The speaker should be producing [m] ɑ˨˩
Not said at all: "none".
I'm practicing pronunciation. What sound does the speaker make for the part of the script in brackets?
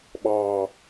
ɓ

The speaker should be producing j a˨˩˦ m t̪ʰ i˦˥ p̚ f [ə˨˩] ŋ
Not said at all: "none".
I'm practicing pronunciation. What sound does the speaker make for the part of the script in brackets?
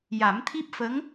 ə˧˥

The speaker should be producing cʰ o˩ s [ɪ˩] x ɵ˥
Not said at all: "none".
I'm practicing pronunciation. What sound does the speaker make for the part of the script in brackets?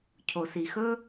i˩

